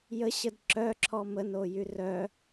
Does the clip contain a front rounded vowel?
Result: yes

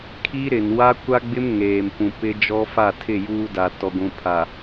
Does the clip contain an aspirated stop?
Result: yes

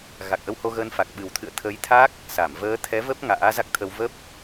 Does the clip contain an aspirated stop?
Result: yes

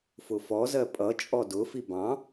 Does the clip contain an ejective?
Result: yes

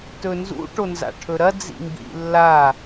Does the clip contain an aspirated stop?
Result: yes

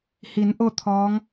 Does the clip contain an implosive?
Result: no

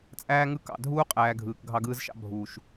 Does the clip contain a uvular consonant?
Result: yes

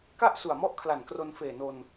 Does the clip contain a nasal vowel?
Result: no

